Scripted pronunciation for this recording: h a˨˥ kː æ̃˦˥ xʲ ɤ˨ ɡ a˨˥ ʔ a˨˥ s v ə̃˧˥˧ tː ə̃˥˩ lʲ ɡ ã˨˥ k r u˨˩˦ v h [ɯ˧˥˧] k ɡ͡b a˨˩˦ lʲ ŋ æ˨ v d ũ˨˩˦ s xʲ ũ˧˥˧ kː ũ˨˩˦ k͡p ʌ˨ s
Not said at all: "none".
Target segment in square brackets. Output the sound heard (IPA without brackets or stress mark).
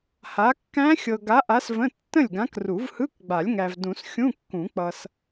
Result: ɯ˧˥˧